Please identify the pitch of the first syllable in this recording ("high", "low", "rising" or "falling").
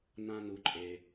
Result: high